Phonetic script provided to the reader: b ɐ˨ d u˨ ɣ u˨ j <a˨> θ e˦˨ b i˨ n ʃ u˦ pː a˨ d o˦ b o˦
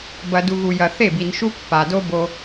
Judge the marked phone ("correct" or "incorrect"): incorrect